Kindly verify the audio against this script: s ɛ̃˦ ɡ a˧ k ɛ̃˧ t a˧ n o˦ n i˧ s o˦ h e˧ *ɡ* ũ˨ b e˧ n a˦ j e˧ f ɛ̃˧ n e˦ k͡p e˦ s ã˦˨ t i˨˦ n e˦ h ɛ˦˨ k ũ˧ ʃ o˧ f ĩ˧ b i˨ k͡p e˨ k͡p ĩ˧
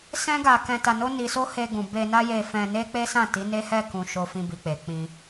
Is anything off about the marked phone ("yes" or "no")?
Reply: no